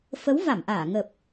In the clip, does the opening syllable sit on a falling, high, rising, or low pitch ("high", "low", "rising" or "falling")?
rising